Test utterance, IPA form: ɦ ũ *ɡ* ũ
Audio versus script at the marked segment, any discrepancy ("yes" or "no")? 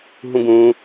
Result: no